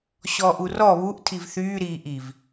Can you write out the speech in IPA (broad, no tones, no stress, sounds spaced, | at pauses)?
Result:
ɕ ɔː ʔ u r ɔ β u ʔ tʰ i v θ yː ɾ iː ʔ i v